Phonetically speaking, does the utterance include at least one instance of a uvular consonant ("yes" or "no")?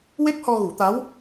no